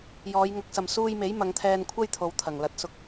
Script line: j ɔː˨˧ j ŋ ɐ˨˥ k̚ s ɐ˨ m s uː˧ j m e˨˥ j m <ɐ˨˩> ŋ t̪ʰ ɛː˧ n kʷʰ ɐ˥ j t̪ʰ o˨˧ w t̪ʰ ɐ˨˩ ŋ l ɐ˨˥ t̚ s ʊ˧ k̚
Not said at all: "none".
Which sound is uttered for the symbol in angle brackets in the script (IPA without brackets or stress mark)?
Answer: ɐ˨˧